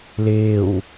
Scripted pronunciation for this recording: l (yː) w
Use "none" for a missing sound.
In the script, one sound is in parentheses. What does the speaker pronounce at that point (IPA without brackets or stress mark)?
ɪː